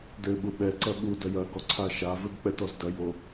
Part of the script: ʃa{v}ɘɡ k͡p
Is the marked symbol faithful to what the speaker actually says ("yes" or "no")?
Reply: yes